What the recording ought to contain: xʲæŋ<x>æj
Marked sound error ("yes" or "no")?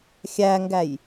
yes